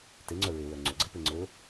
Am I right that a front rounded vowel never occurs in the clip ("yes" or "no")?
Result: no